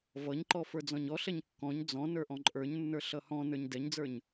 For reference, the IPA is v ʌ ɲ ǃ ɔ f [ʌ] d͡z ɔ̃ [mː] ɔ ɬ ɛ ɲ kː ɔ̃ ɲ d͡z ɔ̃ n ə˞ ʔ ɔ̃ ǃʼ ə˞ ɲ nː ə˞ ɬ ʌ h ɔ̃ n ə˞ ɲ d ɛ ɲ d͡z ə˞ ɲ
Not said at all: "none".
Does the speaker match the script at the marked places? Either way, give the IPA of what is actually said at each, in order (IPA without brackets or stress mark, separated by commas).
ə˞, ɲ